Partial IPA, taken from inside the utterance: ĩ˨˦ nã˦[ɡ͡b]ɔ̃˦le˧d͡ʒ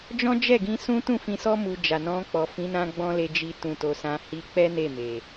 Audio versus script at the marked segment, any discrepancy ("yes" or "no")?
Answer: no